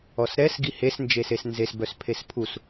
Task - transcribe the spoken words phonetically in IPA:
ɔ s ɾ ɛ s ɡ i h e s n d͡ʒ e s e s n z e s b œ s pʰ e s pʰ u s

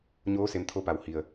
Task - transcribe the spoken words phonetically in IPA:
ɲ oː˧˥ s e˧˩ m t̪ʰ o˧ p a˩ w h i˩ ə̯

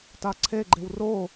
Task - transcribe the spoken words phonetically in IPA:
t a ǀʰ e ɡ͡ǃ e w r o

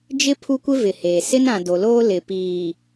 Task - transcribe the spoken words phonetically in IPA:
d͡ʒ ɪ˦ pʰ u˦ kʷ ɪ˦ v ɪ˨ h eː˨ s ɪ˦ n ã˨ d o˨ l oː˦ l ɪ˨ p iː˨

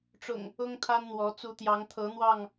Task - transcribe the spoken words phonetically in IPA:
ʈ͡ʂ ʊ̰˨˩ ŋ | ʊ˦ ŋ t̪ʰ a˦ n n̪ w ɔ˨˦ t͡s u˨˦ t̪ j ɑ˨˦ ŋ t̪ʰ ɤ˨˦ n̪ w ɑ˥˨ ŋ

